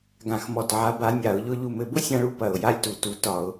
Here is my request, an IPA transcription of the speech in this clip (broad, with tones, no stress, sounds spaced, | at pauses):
ɡ ã˧˩˧ x m ɔ˧˩ t ʕ a˨˥ b a˨˥ nʲ a˧˩˧ ʊ̯ ʎ ʊ˦ ʎ u˧˩ m ɘ˧˩˧ b ʊ˦ sʲ ã˦ ɭ u˦ p ɐ˧˩ ʊ̯ j a˦ lʲ t u˧˩˧ t u˨˥ t ɒ˧˩˧ ʊ̯